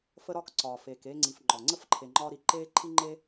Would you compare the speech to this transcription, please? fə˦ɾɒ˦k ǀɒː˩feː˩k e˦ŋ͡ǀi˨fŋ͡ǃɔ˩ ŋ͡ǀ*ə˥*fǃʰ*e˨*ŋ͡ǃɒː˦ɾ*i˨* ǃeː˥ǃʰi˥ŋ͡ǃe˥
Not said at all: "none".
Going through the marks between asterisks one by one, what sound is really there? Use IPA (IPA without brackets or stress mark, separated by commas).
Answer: ə˥, e˨, i˨